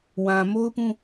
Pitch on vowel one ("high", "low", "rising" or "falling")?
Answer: low